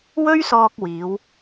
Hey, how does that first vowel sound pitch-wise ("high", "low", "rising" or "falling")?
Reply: high